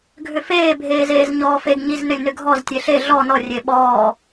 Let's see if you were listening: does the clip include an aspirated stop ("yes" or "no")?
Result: no